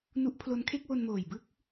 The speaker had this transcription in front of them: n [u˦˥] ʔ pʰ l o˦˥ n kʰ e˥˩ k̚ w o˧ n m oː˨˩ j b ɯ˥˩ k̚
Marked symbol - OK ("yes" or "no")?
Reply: yes